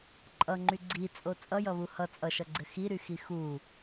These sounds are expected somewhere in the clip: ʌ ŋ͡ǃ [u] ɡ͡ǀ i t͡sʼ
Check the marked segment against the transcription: incorrect: y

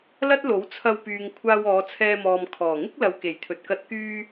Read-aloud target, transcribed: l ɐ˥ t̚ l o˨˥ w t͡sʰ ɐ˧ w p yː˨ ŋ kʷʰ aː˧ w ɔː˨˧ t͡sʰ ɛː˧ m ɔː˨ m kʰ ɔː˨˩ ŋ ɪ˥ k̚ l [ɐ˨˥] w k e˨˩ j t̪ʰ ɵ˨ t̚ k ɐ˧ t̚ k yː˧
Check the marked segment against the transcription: incorrect: ɐ˨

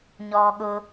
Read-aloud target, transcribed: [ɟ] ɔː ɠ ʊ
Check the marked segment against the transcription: incorrect: ɲ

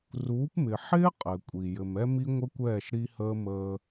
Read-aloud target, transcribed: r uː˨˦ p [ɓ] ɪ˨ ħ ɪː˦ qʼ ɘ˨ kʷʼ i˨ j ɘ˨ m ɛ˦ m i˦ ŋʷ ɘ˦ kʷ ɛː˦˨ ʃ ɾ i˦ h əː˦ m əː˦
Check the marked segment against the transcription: incorrect: m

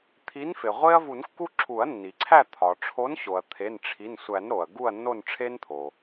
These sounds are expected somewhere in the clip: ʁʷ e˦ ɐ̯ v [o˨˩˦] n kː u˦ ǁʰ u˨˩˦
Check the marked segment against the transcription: incorrect: u˨˩˦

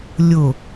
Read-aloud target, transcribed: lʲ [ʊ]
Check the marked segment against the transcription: correct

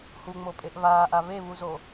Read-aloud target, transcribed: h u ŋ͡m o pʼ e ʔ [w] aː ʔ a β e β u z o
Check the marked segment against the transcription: incorrect: β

